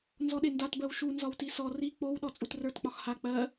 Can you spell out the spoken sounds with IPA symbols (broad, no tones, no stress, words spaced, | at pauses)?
nzɔɗendat bɜwʃu nzɒwtisɔ ri k͡pow ɗɔt͡sʼutrə˞t k͡pɒxha k͡pɜ